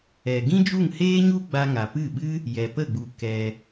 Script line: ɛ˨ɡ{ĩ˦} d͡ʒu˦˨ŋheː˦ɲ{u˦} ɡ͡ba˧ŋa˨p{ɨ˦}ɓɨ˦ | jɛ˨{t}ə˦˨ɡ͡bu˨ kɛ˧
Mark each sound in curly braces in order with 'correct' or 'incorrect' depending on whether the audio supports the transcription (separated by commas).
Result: correct, correct, incorrect, incorrect